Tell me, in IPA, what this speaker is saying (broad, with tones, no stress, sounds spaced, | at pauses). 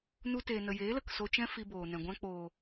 n u˧ t eː˨ n ə˨ j eː˨˦ l ə˨ k s o˧ t͡ʃ ɛ̃˦ f i˧ b oː˨ n ɛ̃˨ ɡʷ ã˧ k͡p oː˨